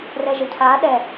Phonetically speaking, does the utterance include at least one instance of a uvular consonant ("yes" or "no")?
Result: no